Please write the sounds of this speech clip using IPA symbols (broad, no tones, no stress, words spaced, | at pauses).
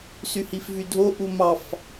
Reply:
syhifvydʱo ʔumɑf